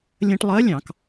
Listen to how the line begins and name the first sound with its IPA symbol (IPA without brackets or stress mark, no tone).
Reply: lʲ